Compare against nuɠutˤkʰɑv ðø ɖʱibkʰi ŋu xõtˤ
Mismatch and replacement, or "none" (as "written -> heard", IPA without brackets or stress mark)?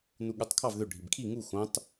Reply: none